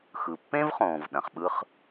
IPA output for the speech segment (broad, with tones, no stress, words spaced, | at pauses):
xɯ˩pːẽ˥vχõː˩v ɗɐ̃˩χɓɯ˥χ